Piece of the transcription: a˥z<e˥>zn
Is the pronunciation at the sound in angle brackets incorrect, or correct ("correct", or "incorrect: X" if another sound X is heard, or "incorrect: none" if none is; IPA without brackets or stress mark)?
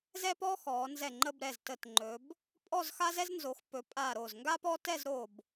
incorrect: ɛ˥